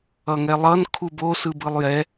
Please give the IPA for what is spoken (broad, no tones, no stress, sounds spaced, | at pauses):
ʌ ŋ ɛ lˠ ʌ n kʰ u b o s ɯ b ɯ lˠ j ɛ